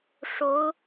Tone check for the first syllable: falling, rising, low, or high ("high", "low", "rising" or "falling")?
rising